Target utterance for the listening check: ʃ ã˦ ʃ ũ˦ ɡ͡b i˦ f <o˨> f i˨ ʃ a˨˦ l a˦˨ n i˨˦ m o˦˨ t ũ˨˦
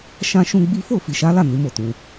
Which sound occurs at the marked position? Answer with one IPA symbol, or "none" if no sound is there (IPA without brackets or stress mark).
o˦˨